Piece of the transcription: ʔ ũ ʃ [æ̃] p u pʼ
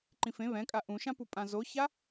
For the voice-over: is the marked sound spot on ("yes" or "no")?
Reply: no